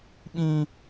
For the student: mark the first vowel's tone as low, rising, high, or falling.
high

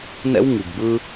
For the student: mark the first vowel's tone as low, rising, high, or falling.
high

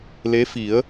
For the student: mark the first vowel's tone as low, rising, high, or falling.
rising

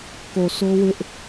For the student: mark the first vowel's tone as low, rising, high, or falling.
low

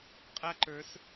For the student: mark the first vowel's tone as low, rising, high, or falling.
high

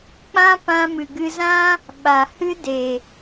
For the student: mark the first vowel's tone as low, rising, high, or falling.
high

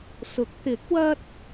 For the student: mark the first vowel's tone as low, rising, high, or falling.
rising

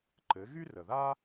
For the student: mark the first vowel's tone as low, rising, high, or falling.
rising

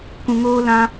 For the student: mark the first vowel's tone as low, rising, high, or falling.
low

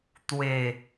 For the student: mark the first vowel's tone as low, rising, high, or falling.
low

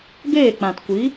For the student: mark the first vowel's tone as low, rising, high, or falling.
falling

